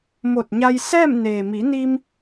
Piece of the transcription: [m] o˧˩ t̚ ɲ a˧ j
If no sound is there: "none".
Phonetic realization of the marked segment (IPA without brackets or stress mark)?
m